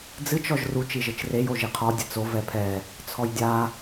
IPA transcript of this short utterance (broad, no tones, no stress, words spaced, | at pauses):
d͡zɨt͡ʃ ɔʒru t͡ʃiʒɘt͡ʃrej oʒiqʰɔ dʲɘt͡so vɛpʰɛ | t͡sʰɔjdʲa